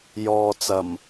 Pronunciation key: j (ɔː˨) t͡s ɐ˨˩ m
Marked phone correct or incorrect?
correct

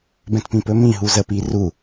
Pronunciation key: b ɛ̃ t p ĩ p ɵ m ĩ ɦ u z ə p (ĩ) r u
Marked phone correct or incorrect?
incorrect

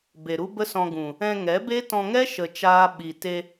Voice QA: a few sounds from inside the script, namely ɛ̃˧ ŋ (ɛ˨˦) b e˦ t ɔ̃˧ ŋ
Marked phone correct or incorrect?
correct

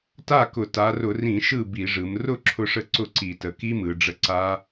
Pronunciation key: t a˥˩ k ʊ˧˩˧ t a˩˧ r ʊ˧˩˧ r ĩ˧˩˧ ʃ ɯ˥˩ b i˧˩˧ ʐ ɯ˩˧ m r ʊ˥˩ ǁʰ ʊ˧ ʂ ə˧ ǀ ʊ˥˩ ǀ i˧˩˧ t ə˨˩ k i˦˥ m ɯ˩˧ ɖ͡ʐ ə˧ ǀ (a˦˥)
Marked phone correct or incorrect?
correct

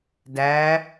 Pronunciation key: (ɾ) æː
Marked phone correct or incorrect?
incorrect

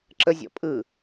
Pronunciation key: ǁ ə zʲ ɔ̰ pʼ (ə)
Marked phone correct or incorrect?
incorrect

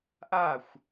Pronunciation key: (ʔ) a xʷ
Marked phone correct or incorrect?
correct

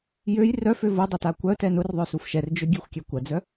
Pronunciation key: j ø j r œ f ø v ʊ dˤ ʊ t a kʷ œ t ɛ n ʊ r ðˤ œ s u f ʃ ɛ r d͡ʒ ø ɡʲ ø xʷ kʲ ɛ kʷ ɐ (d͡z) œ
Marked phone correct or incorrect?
correct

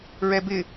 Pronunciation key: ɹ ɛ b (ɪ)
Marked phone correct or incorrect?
correct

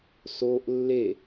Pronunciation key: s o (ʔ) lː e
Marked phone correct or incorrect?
correct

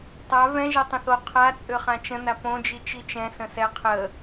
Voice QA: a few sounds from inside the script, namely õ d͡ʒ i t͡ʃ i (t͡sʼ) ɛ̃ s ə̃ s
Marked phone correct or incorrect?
incorrect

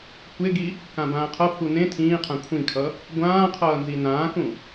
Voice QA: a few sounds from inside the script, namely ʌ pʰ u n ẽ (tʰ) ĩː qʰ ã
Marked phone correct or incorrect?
correct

